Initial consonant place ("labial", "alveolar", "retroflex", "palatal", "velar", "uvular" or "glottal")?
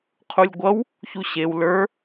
uvular